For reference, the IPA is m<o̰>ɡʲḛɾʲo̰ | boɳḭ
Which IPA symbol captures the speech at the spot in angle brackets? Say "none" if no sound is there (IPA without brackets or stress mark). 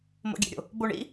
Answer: o̰